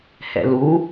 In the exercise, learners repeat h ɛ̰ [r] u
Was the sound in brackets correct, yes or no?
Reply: no